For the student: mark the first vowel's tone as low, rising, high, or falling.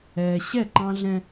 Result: low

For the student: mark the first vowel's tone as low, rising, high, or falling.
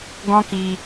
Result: high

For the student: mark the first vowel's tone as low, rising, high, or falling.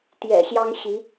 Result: low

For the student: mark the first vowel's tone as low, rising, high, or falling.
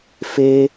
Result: high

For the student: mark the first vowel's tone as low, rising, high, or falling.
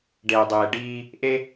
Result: low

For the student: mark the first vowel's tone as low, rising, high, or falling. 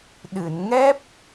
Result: low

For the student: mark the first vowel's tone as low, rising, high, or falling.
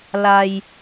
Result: high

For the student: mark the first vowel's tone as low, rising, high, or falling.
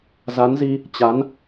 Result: rising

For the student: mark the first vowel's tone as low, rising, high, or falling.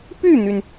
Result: falling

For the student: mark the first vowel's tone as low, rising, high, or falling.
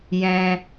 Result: high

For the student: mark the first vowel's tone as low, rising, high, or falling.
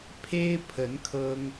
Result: high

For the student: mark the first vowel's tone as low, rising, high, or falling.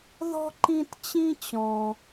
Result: high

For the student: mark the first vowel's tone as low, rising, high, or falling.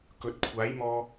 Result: rising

